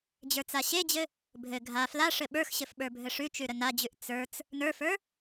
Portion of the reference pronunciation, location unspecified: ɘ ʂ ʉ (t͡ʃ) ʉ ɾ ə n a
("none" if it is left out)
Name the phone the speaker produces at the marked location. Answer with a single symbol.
t͡ʃ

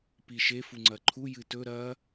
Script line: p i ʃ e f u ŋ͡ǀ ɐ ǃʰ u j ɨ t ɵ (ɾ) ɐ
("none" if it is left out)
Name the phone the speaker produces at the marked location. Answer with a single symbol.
ɾ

